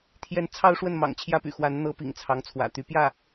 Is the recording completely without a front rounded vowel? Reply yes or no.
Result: no